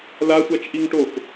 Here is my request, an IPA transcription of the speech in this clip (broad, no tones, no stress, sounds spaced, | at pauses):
l a sʷ a t͡ʃ ʔ i ŋ ʈ o k